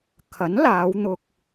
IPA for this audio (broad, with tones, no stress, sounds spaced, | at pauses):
kʰ ɐ˨˥ n l aː˨˧ w n̪ ʊ˧ k̚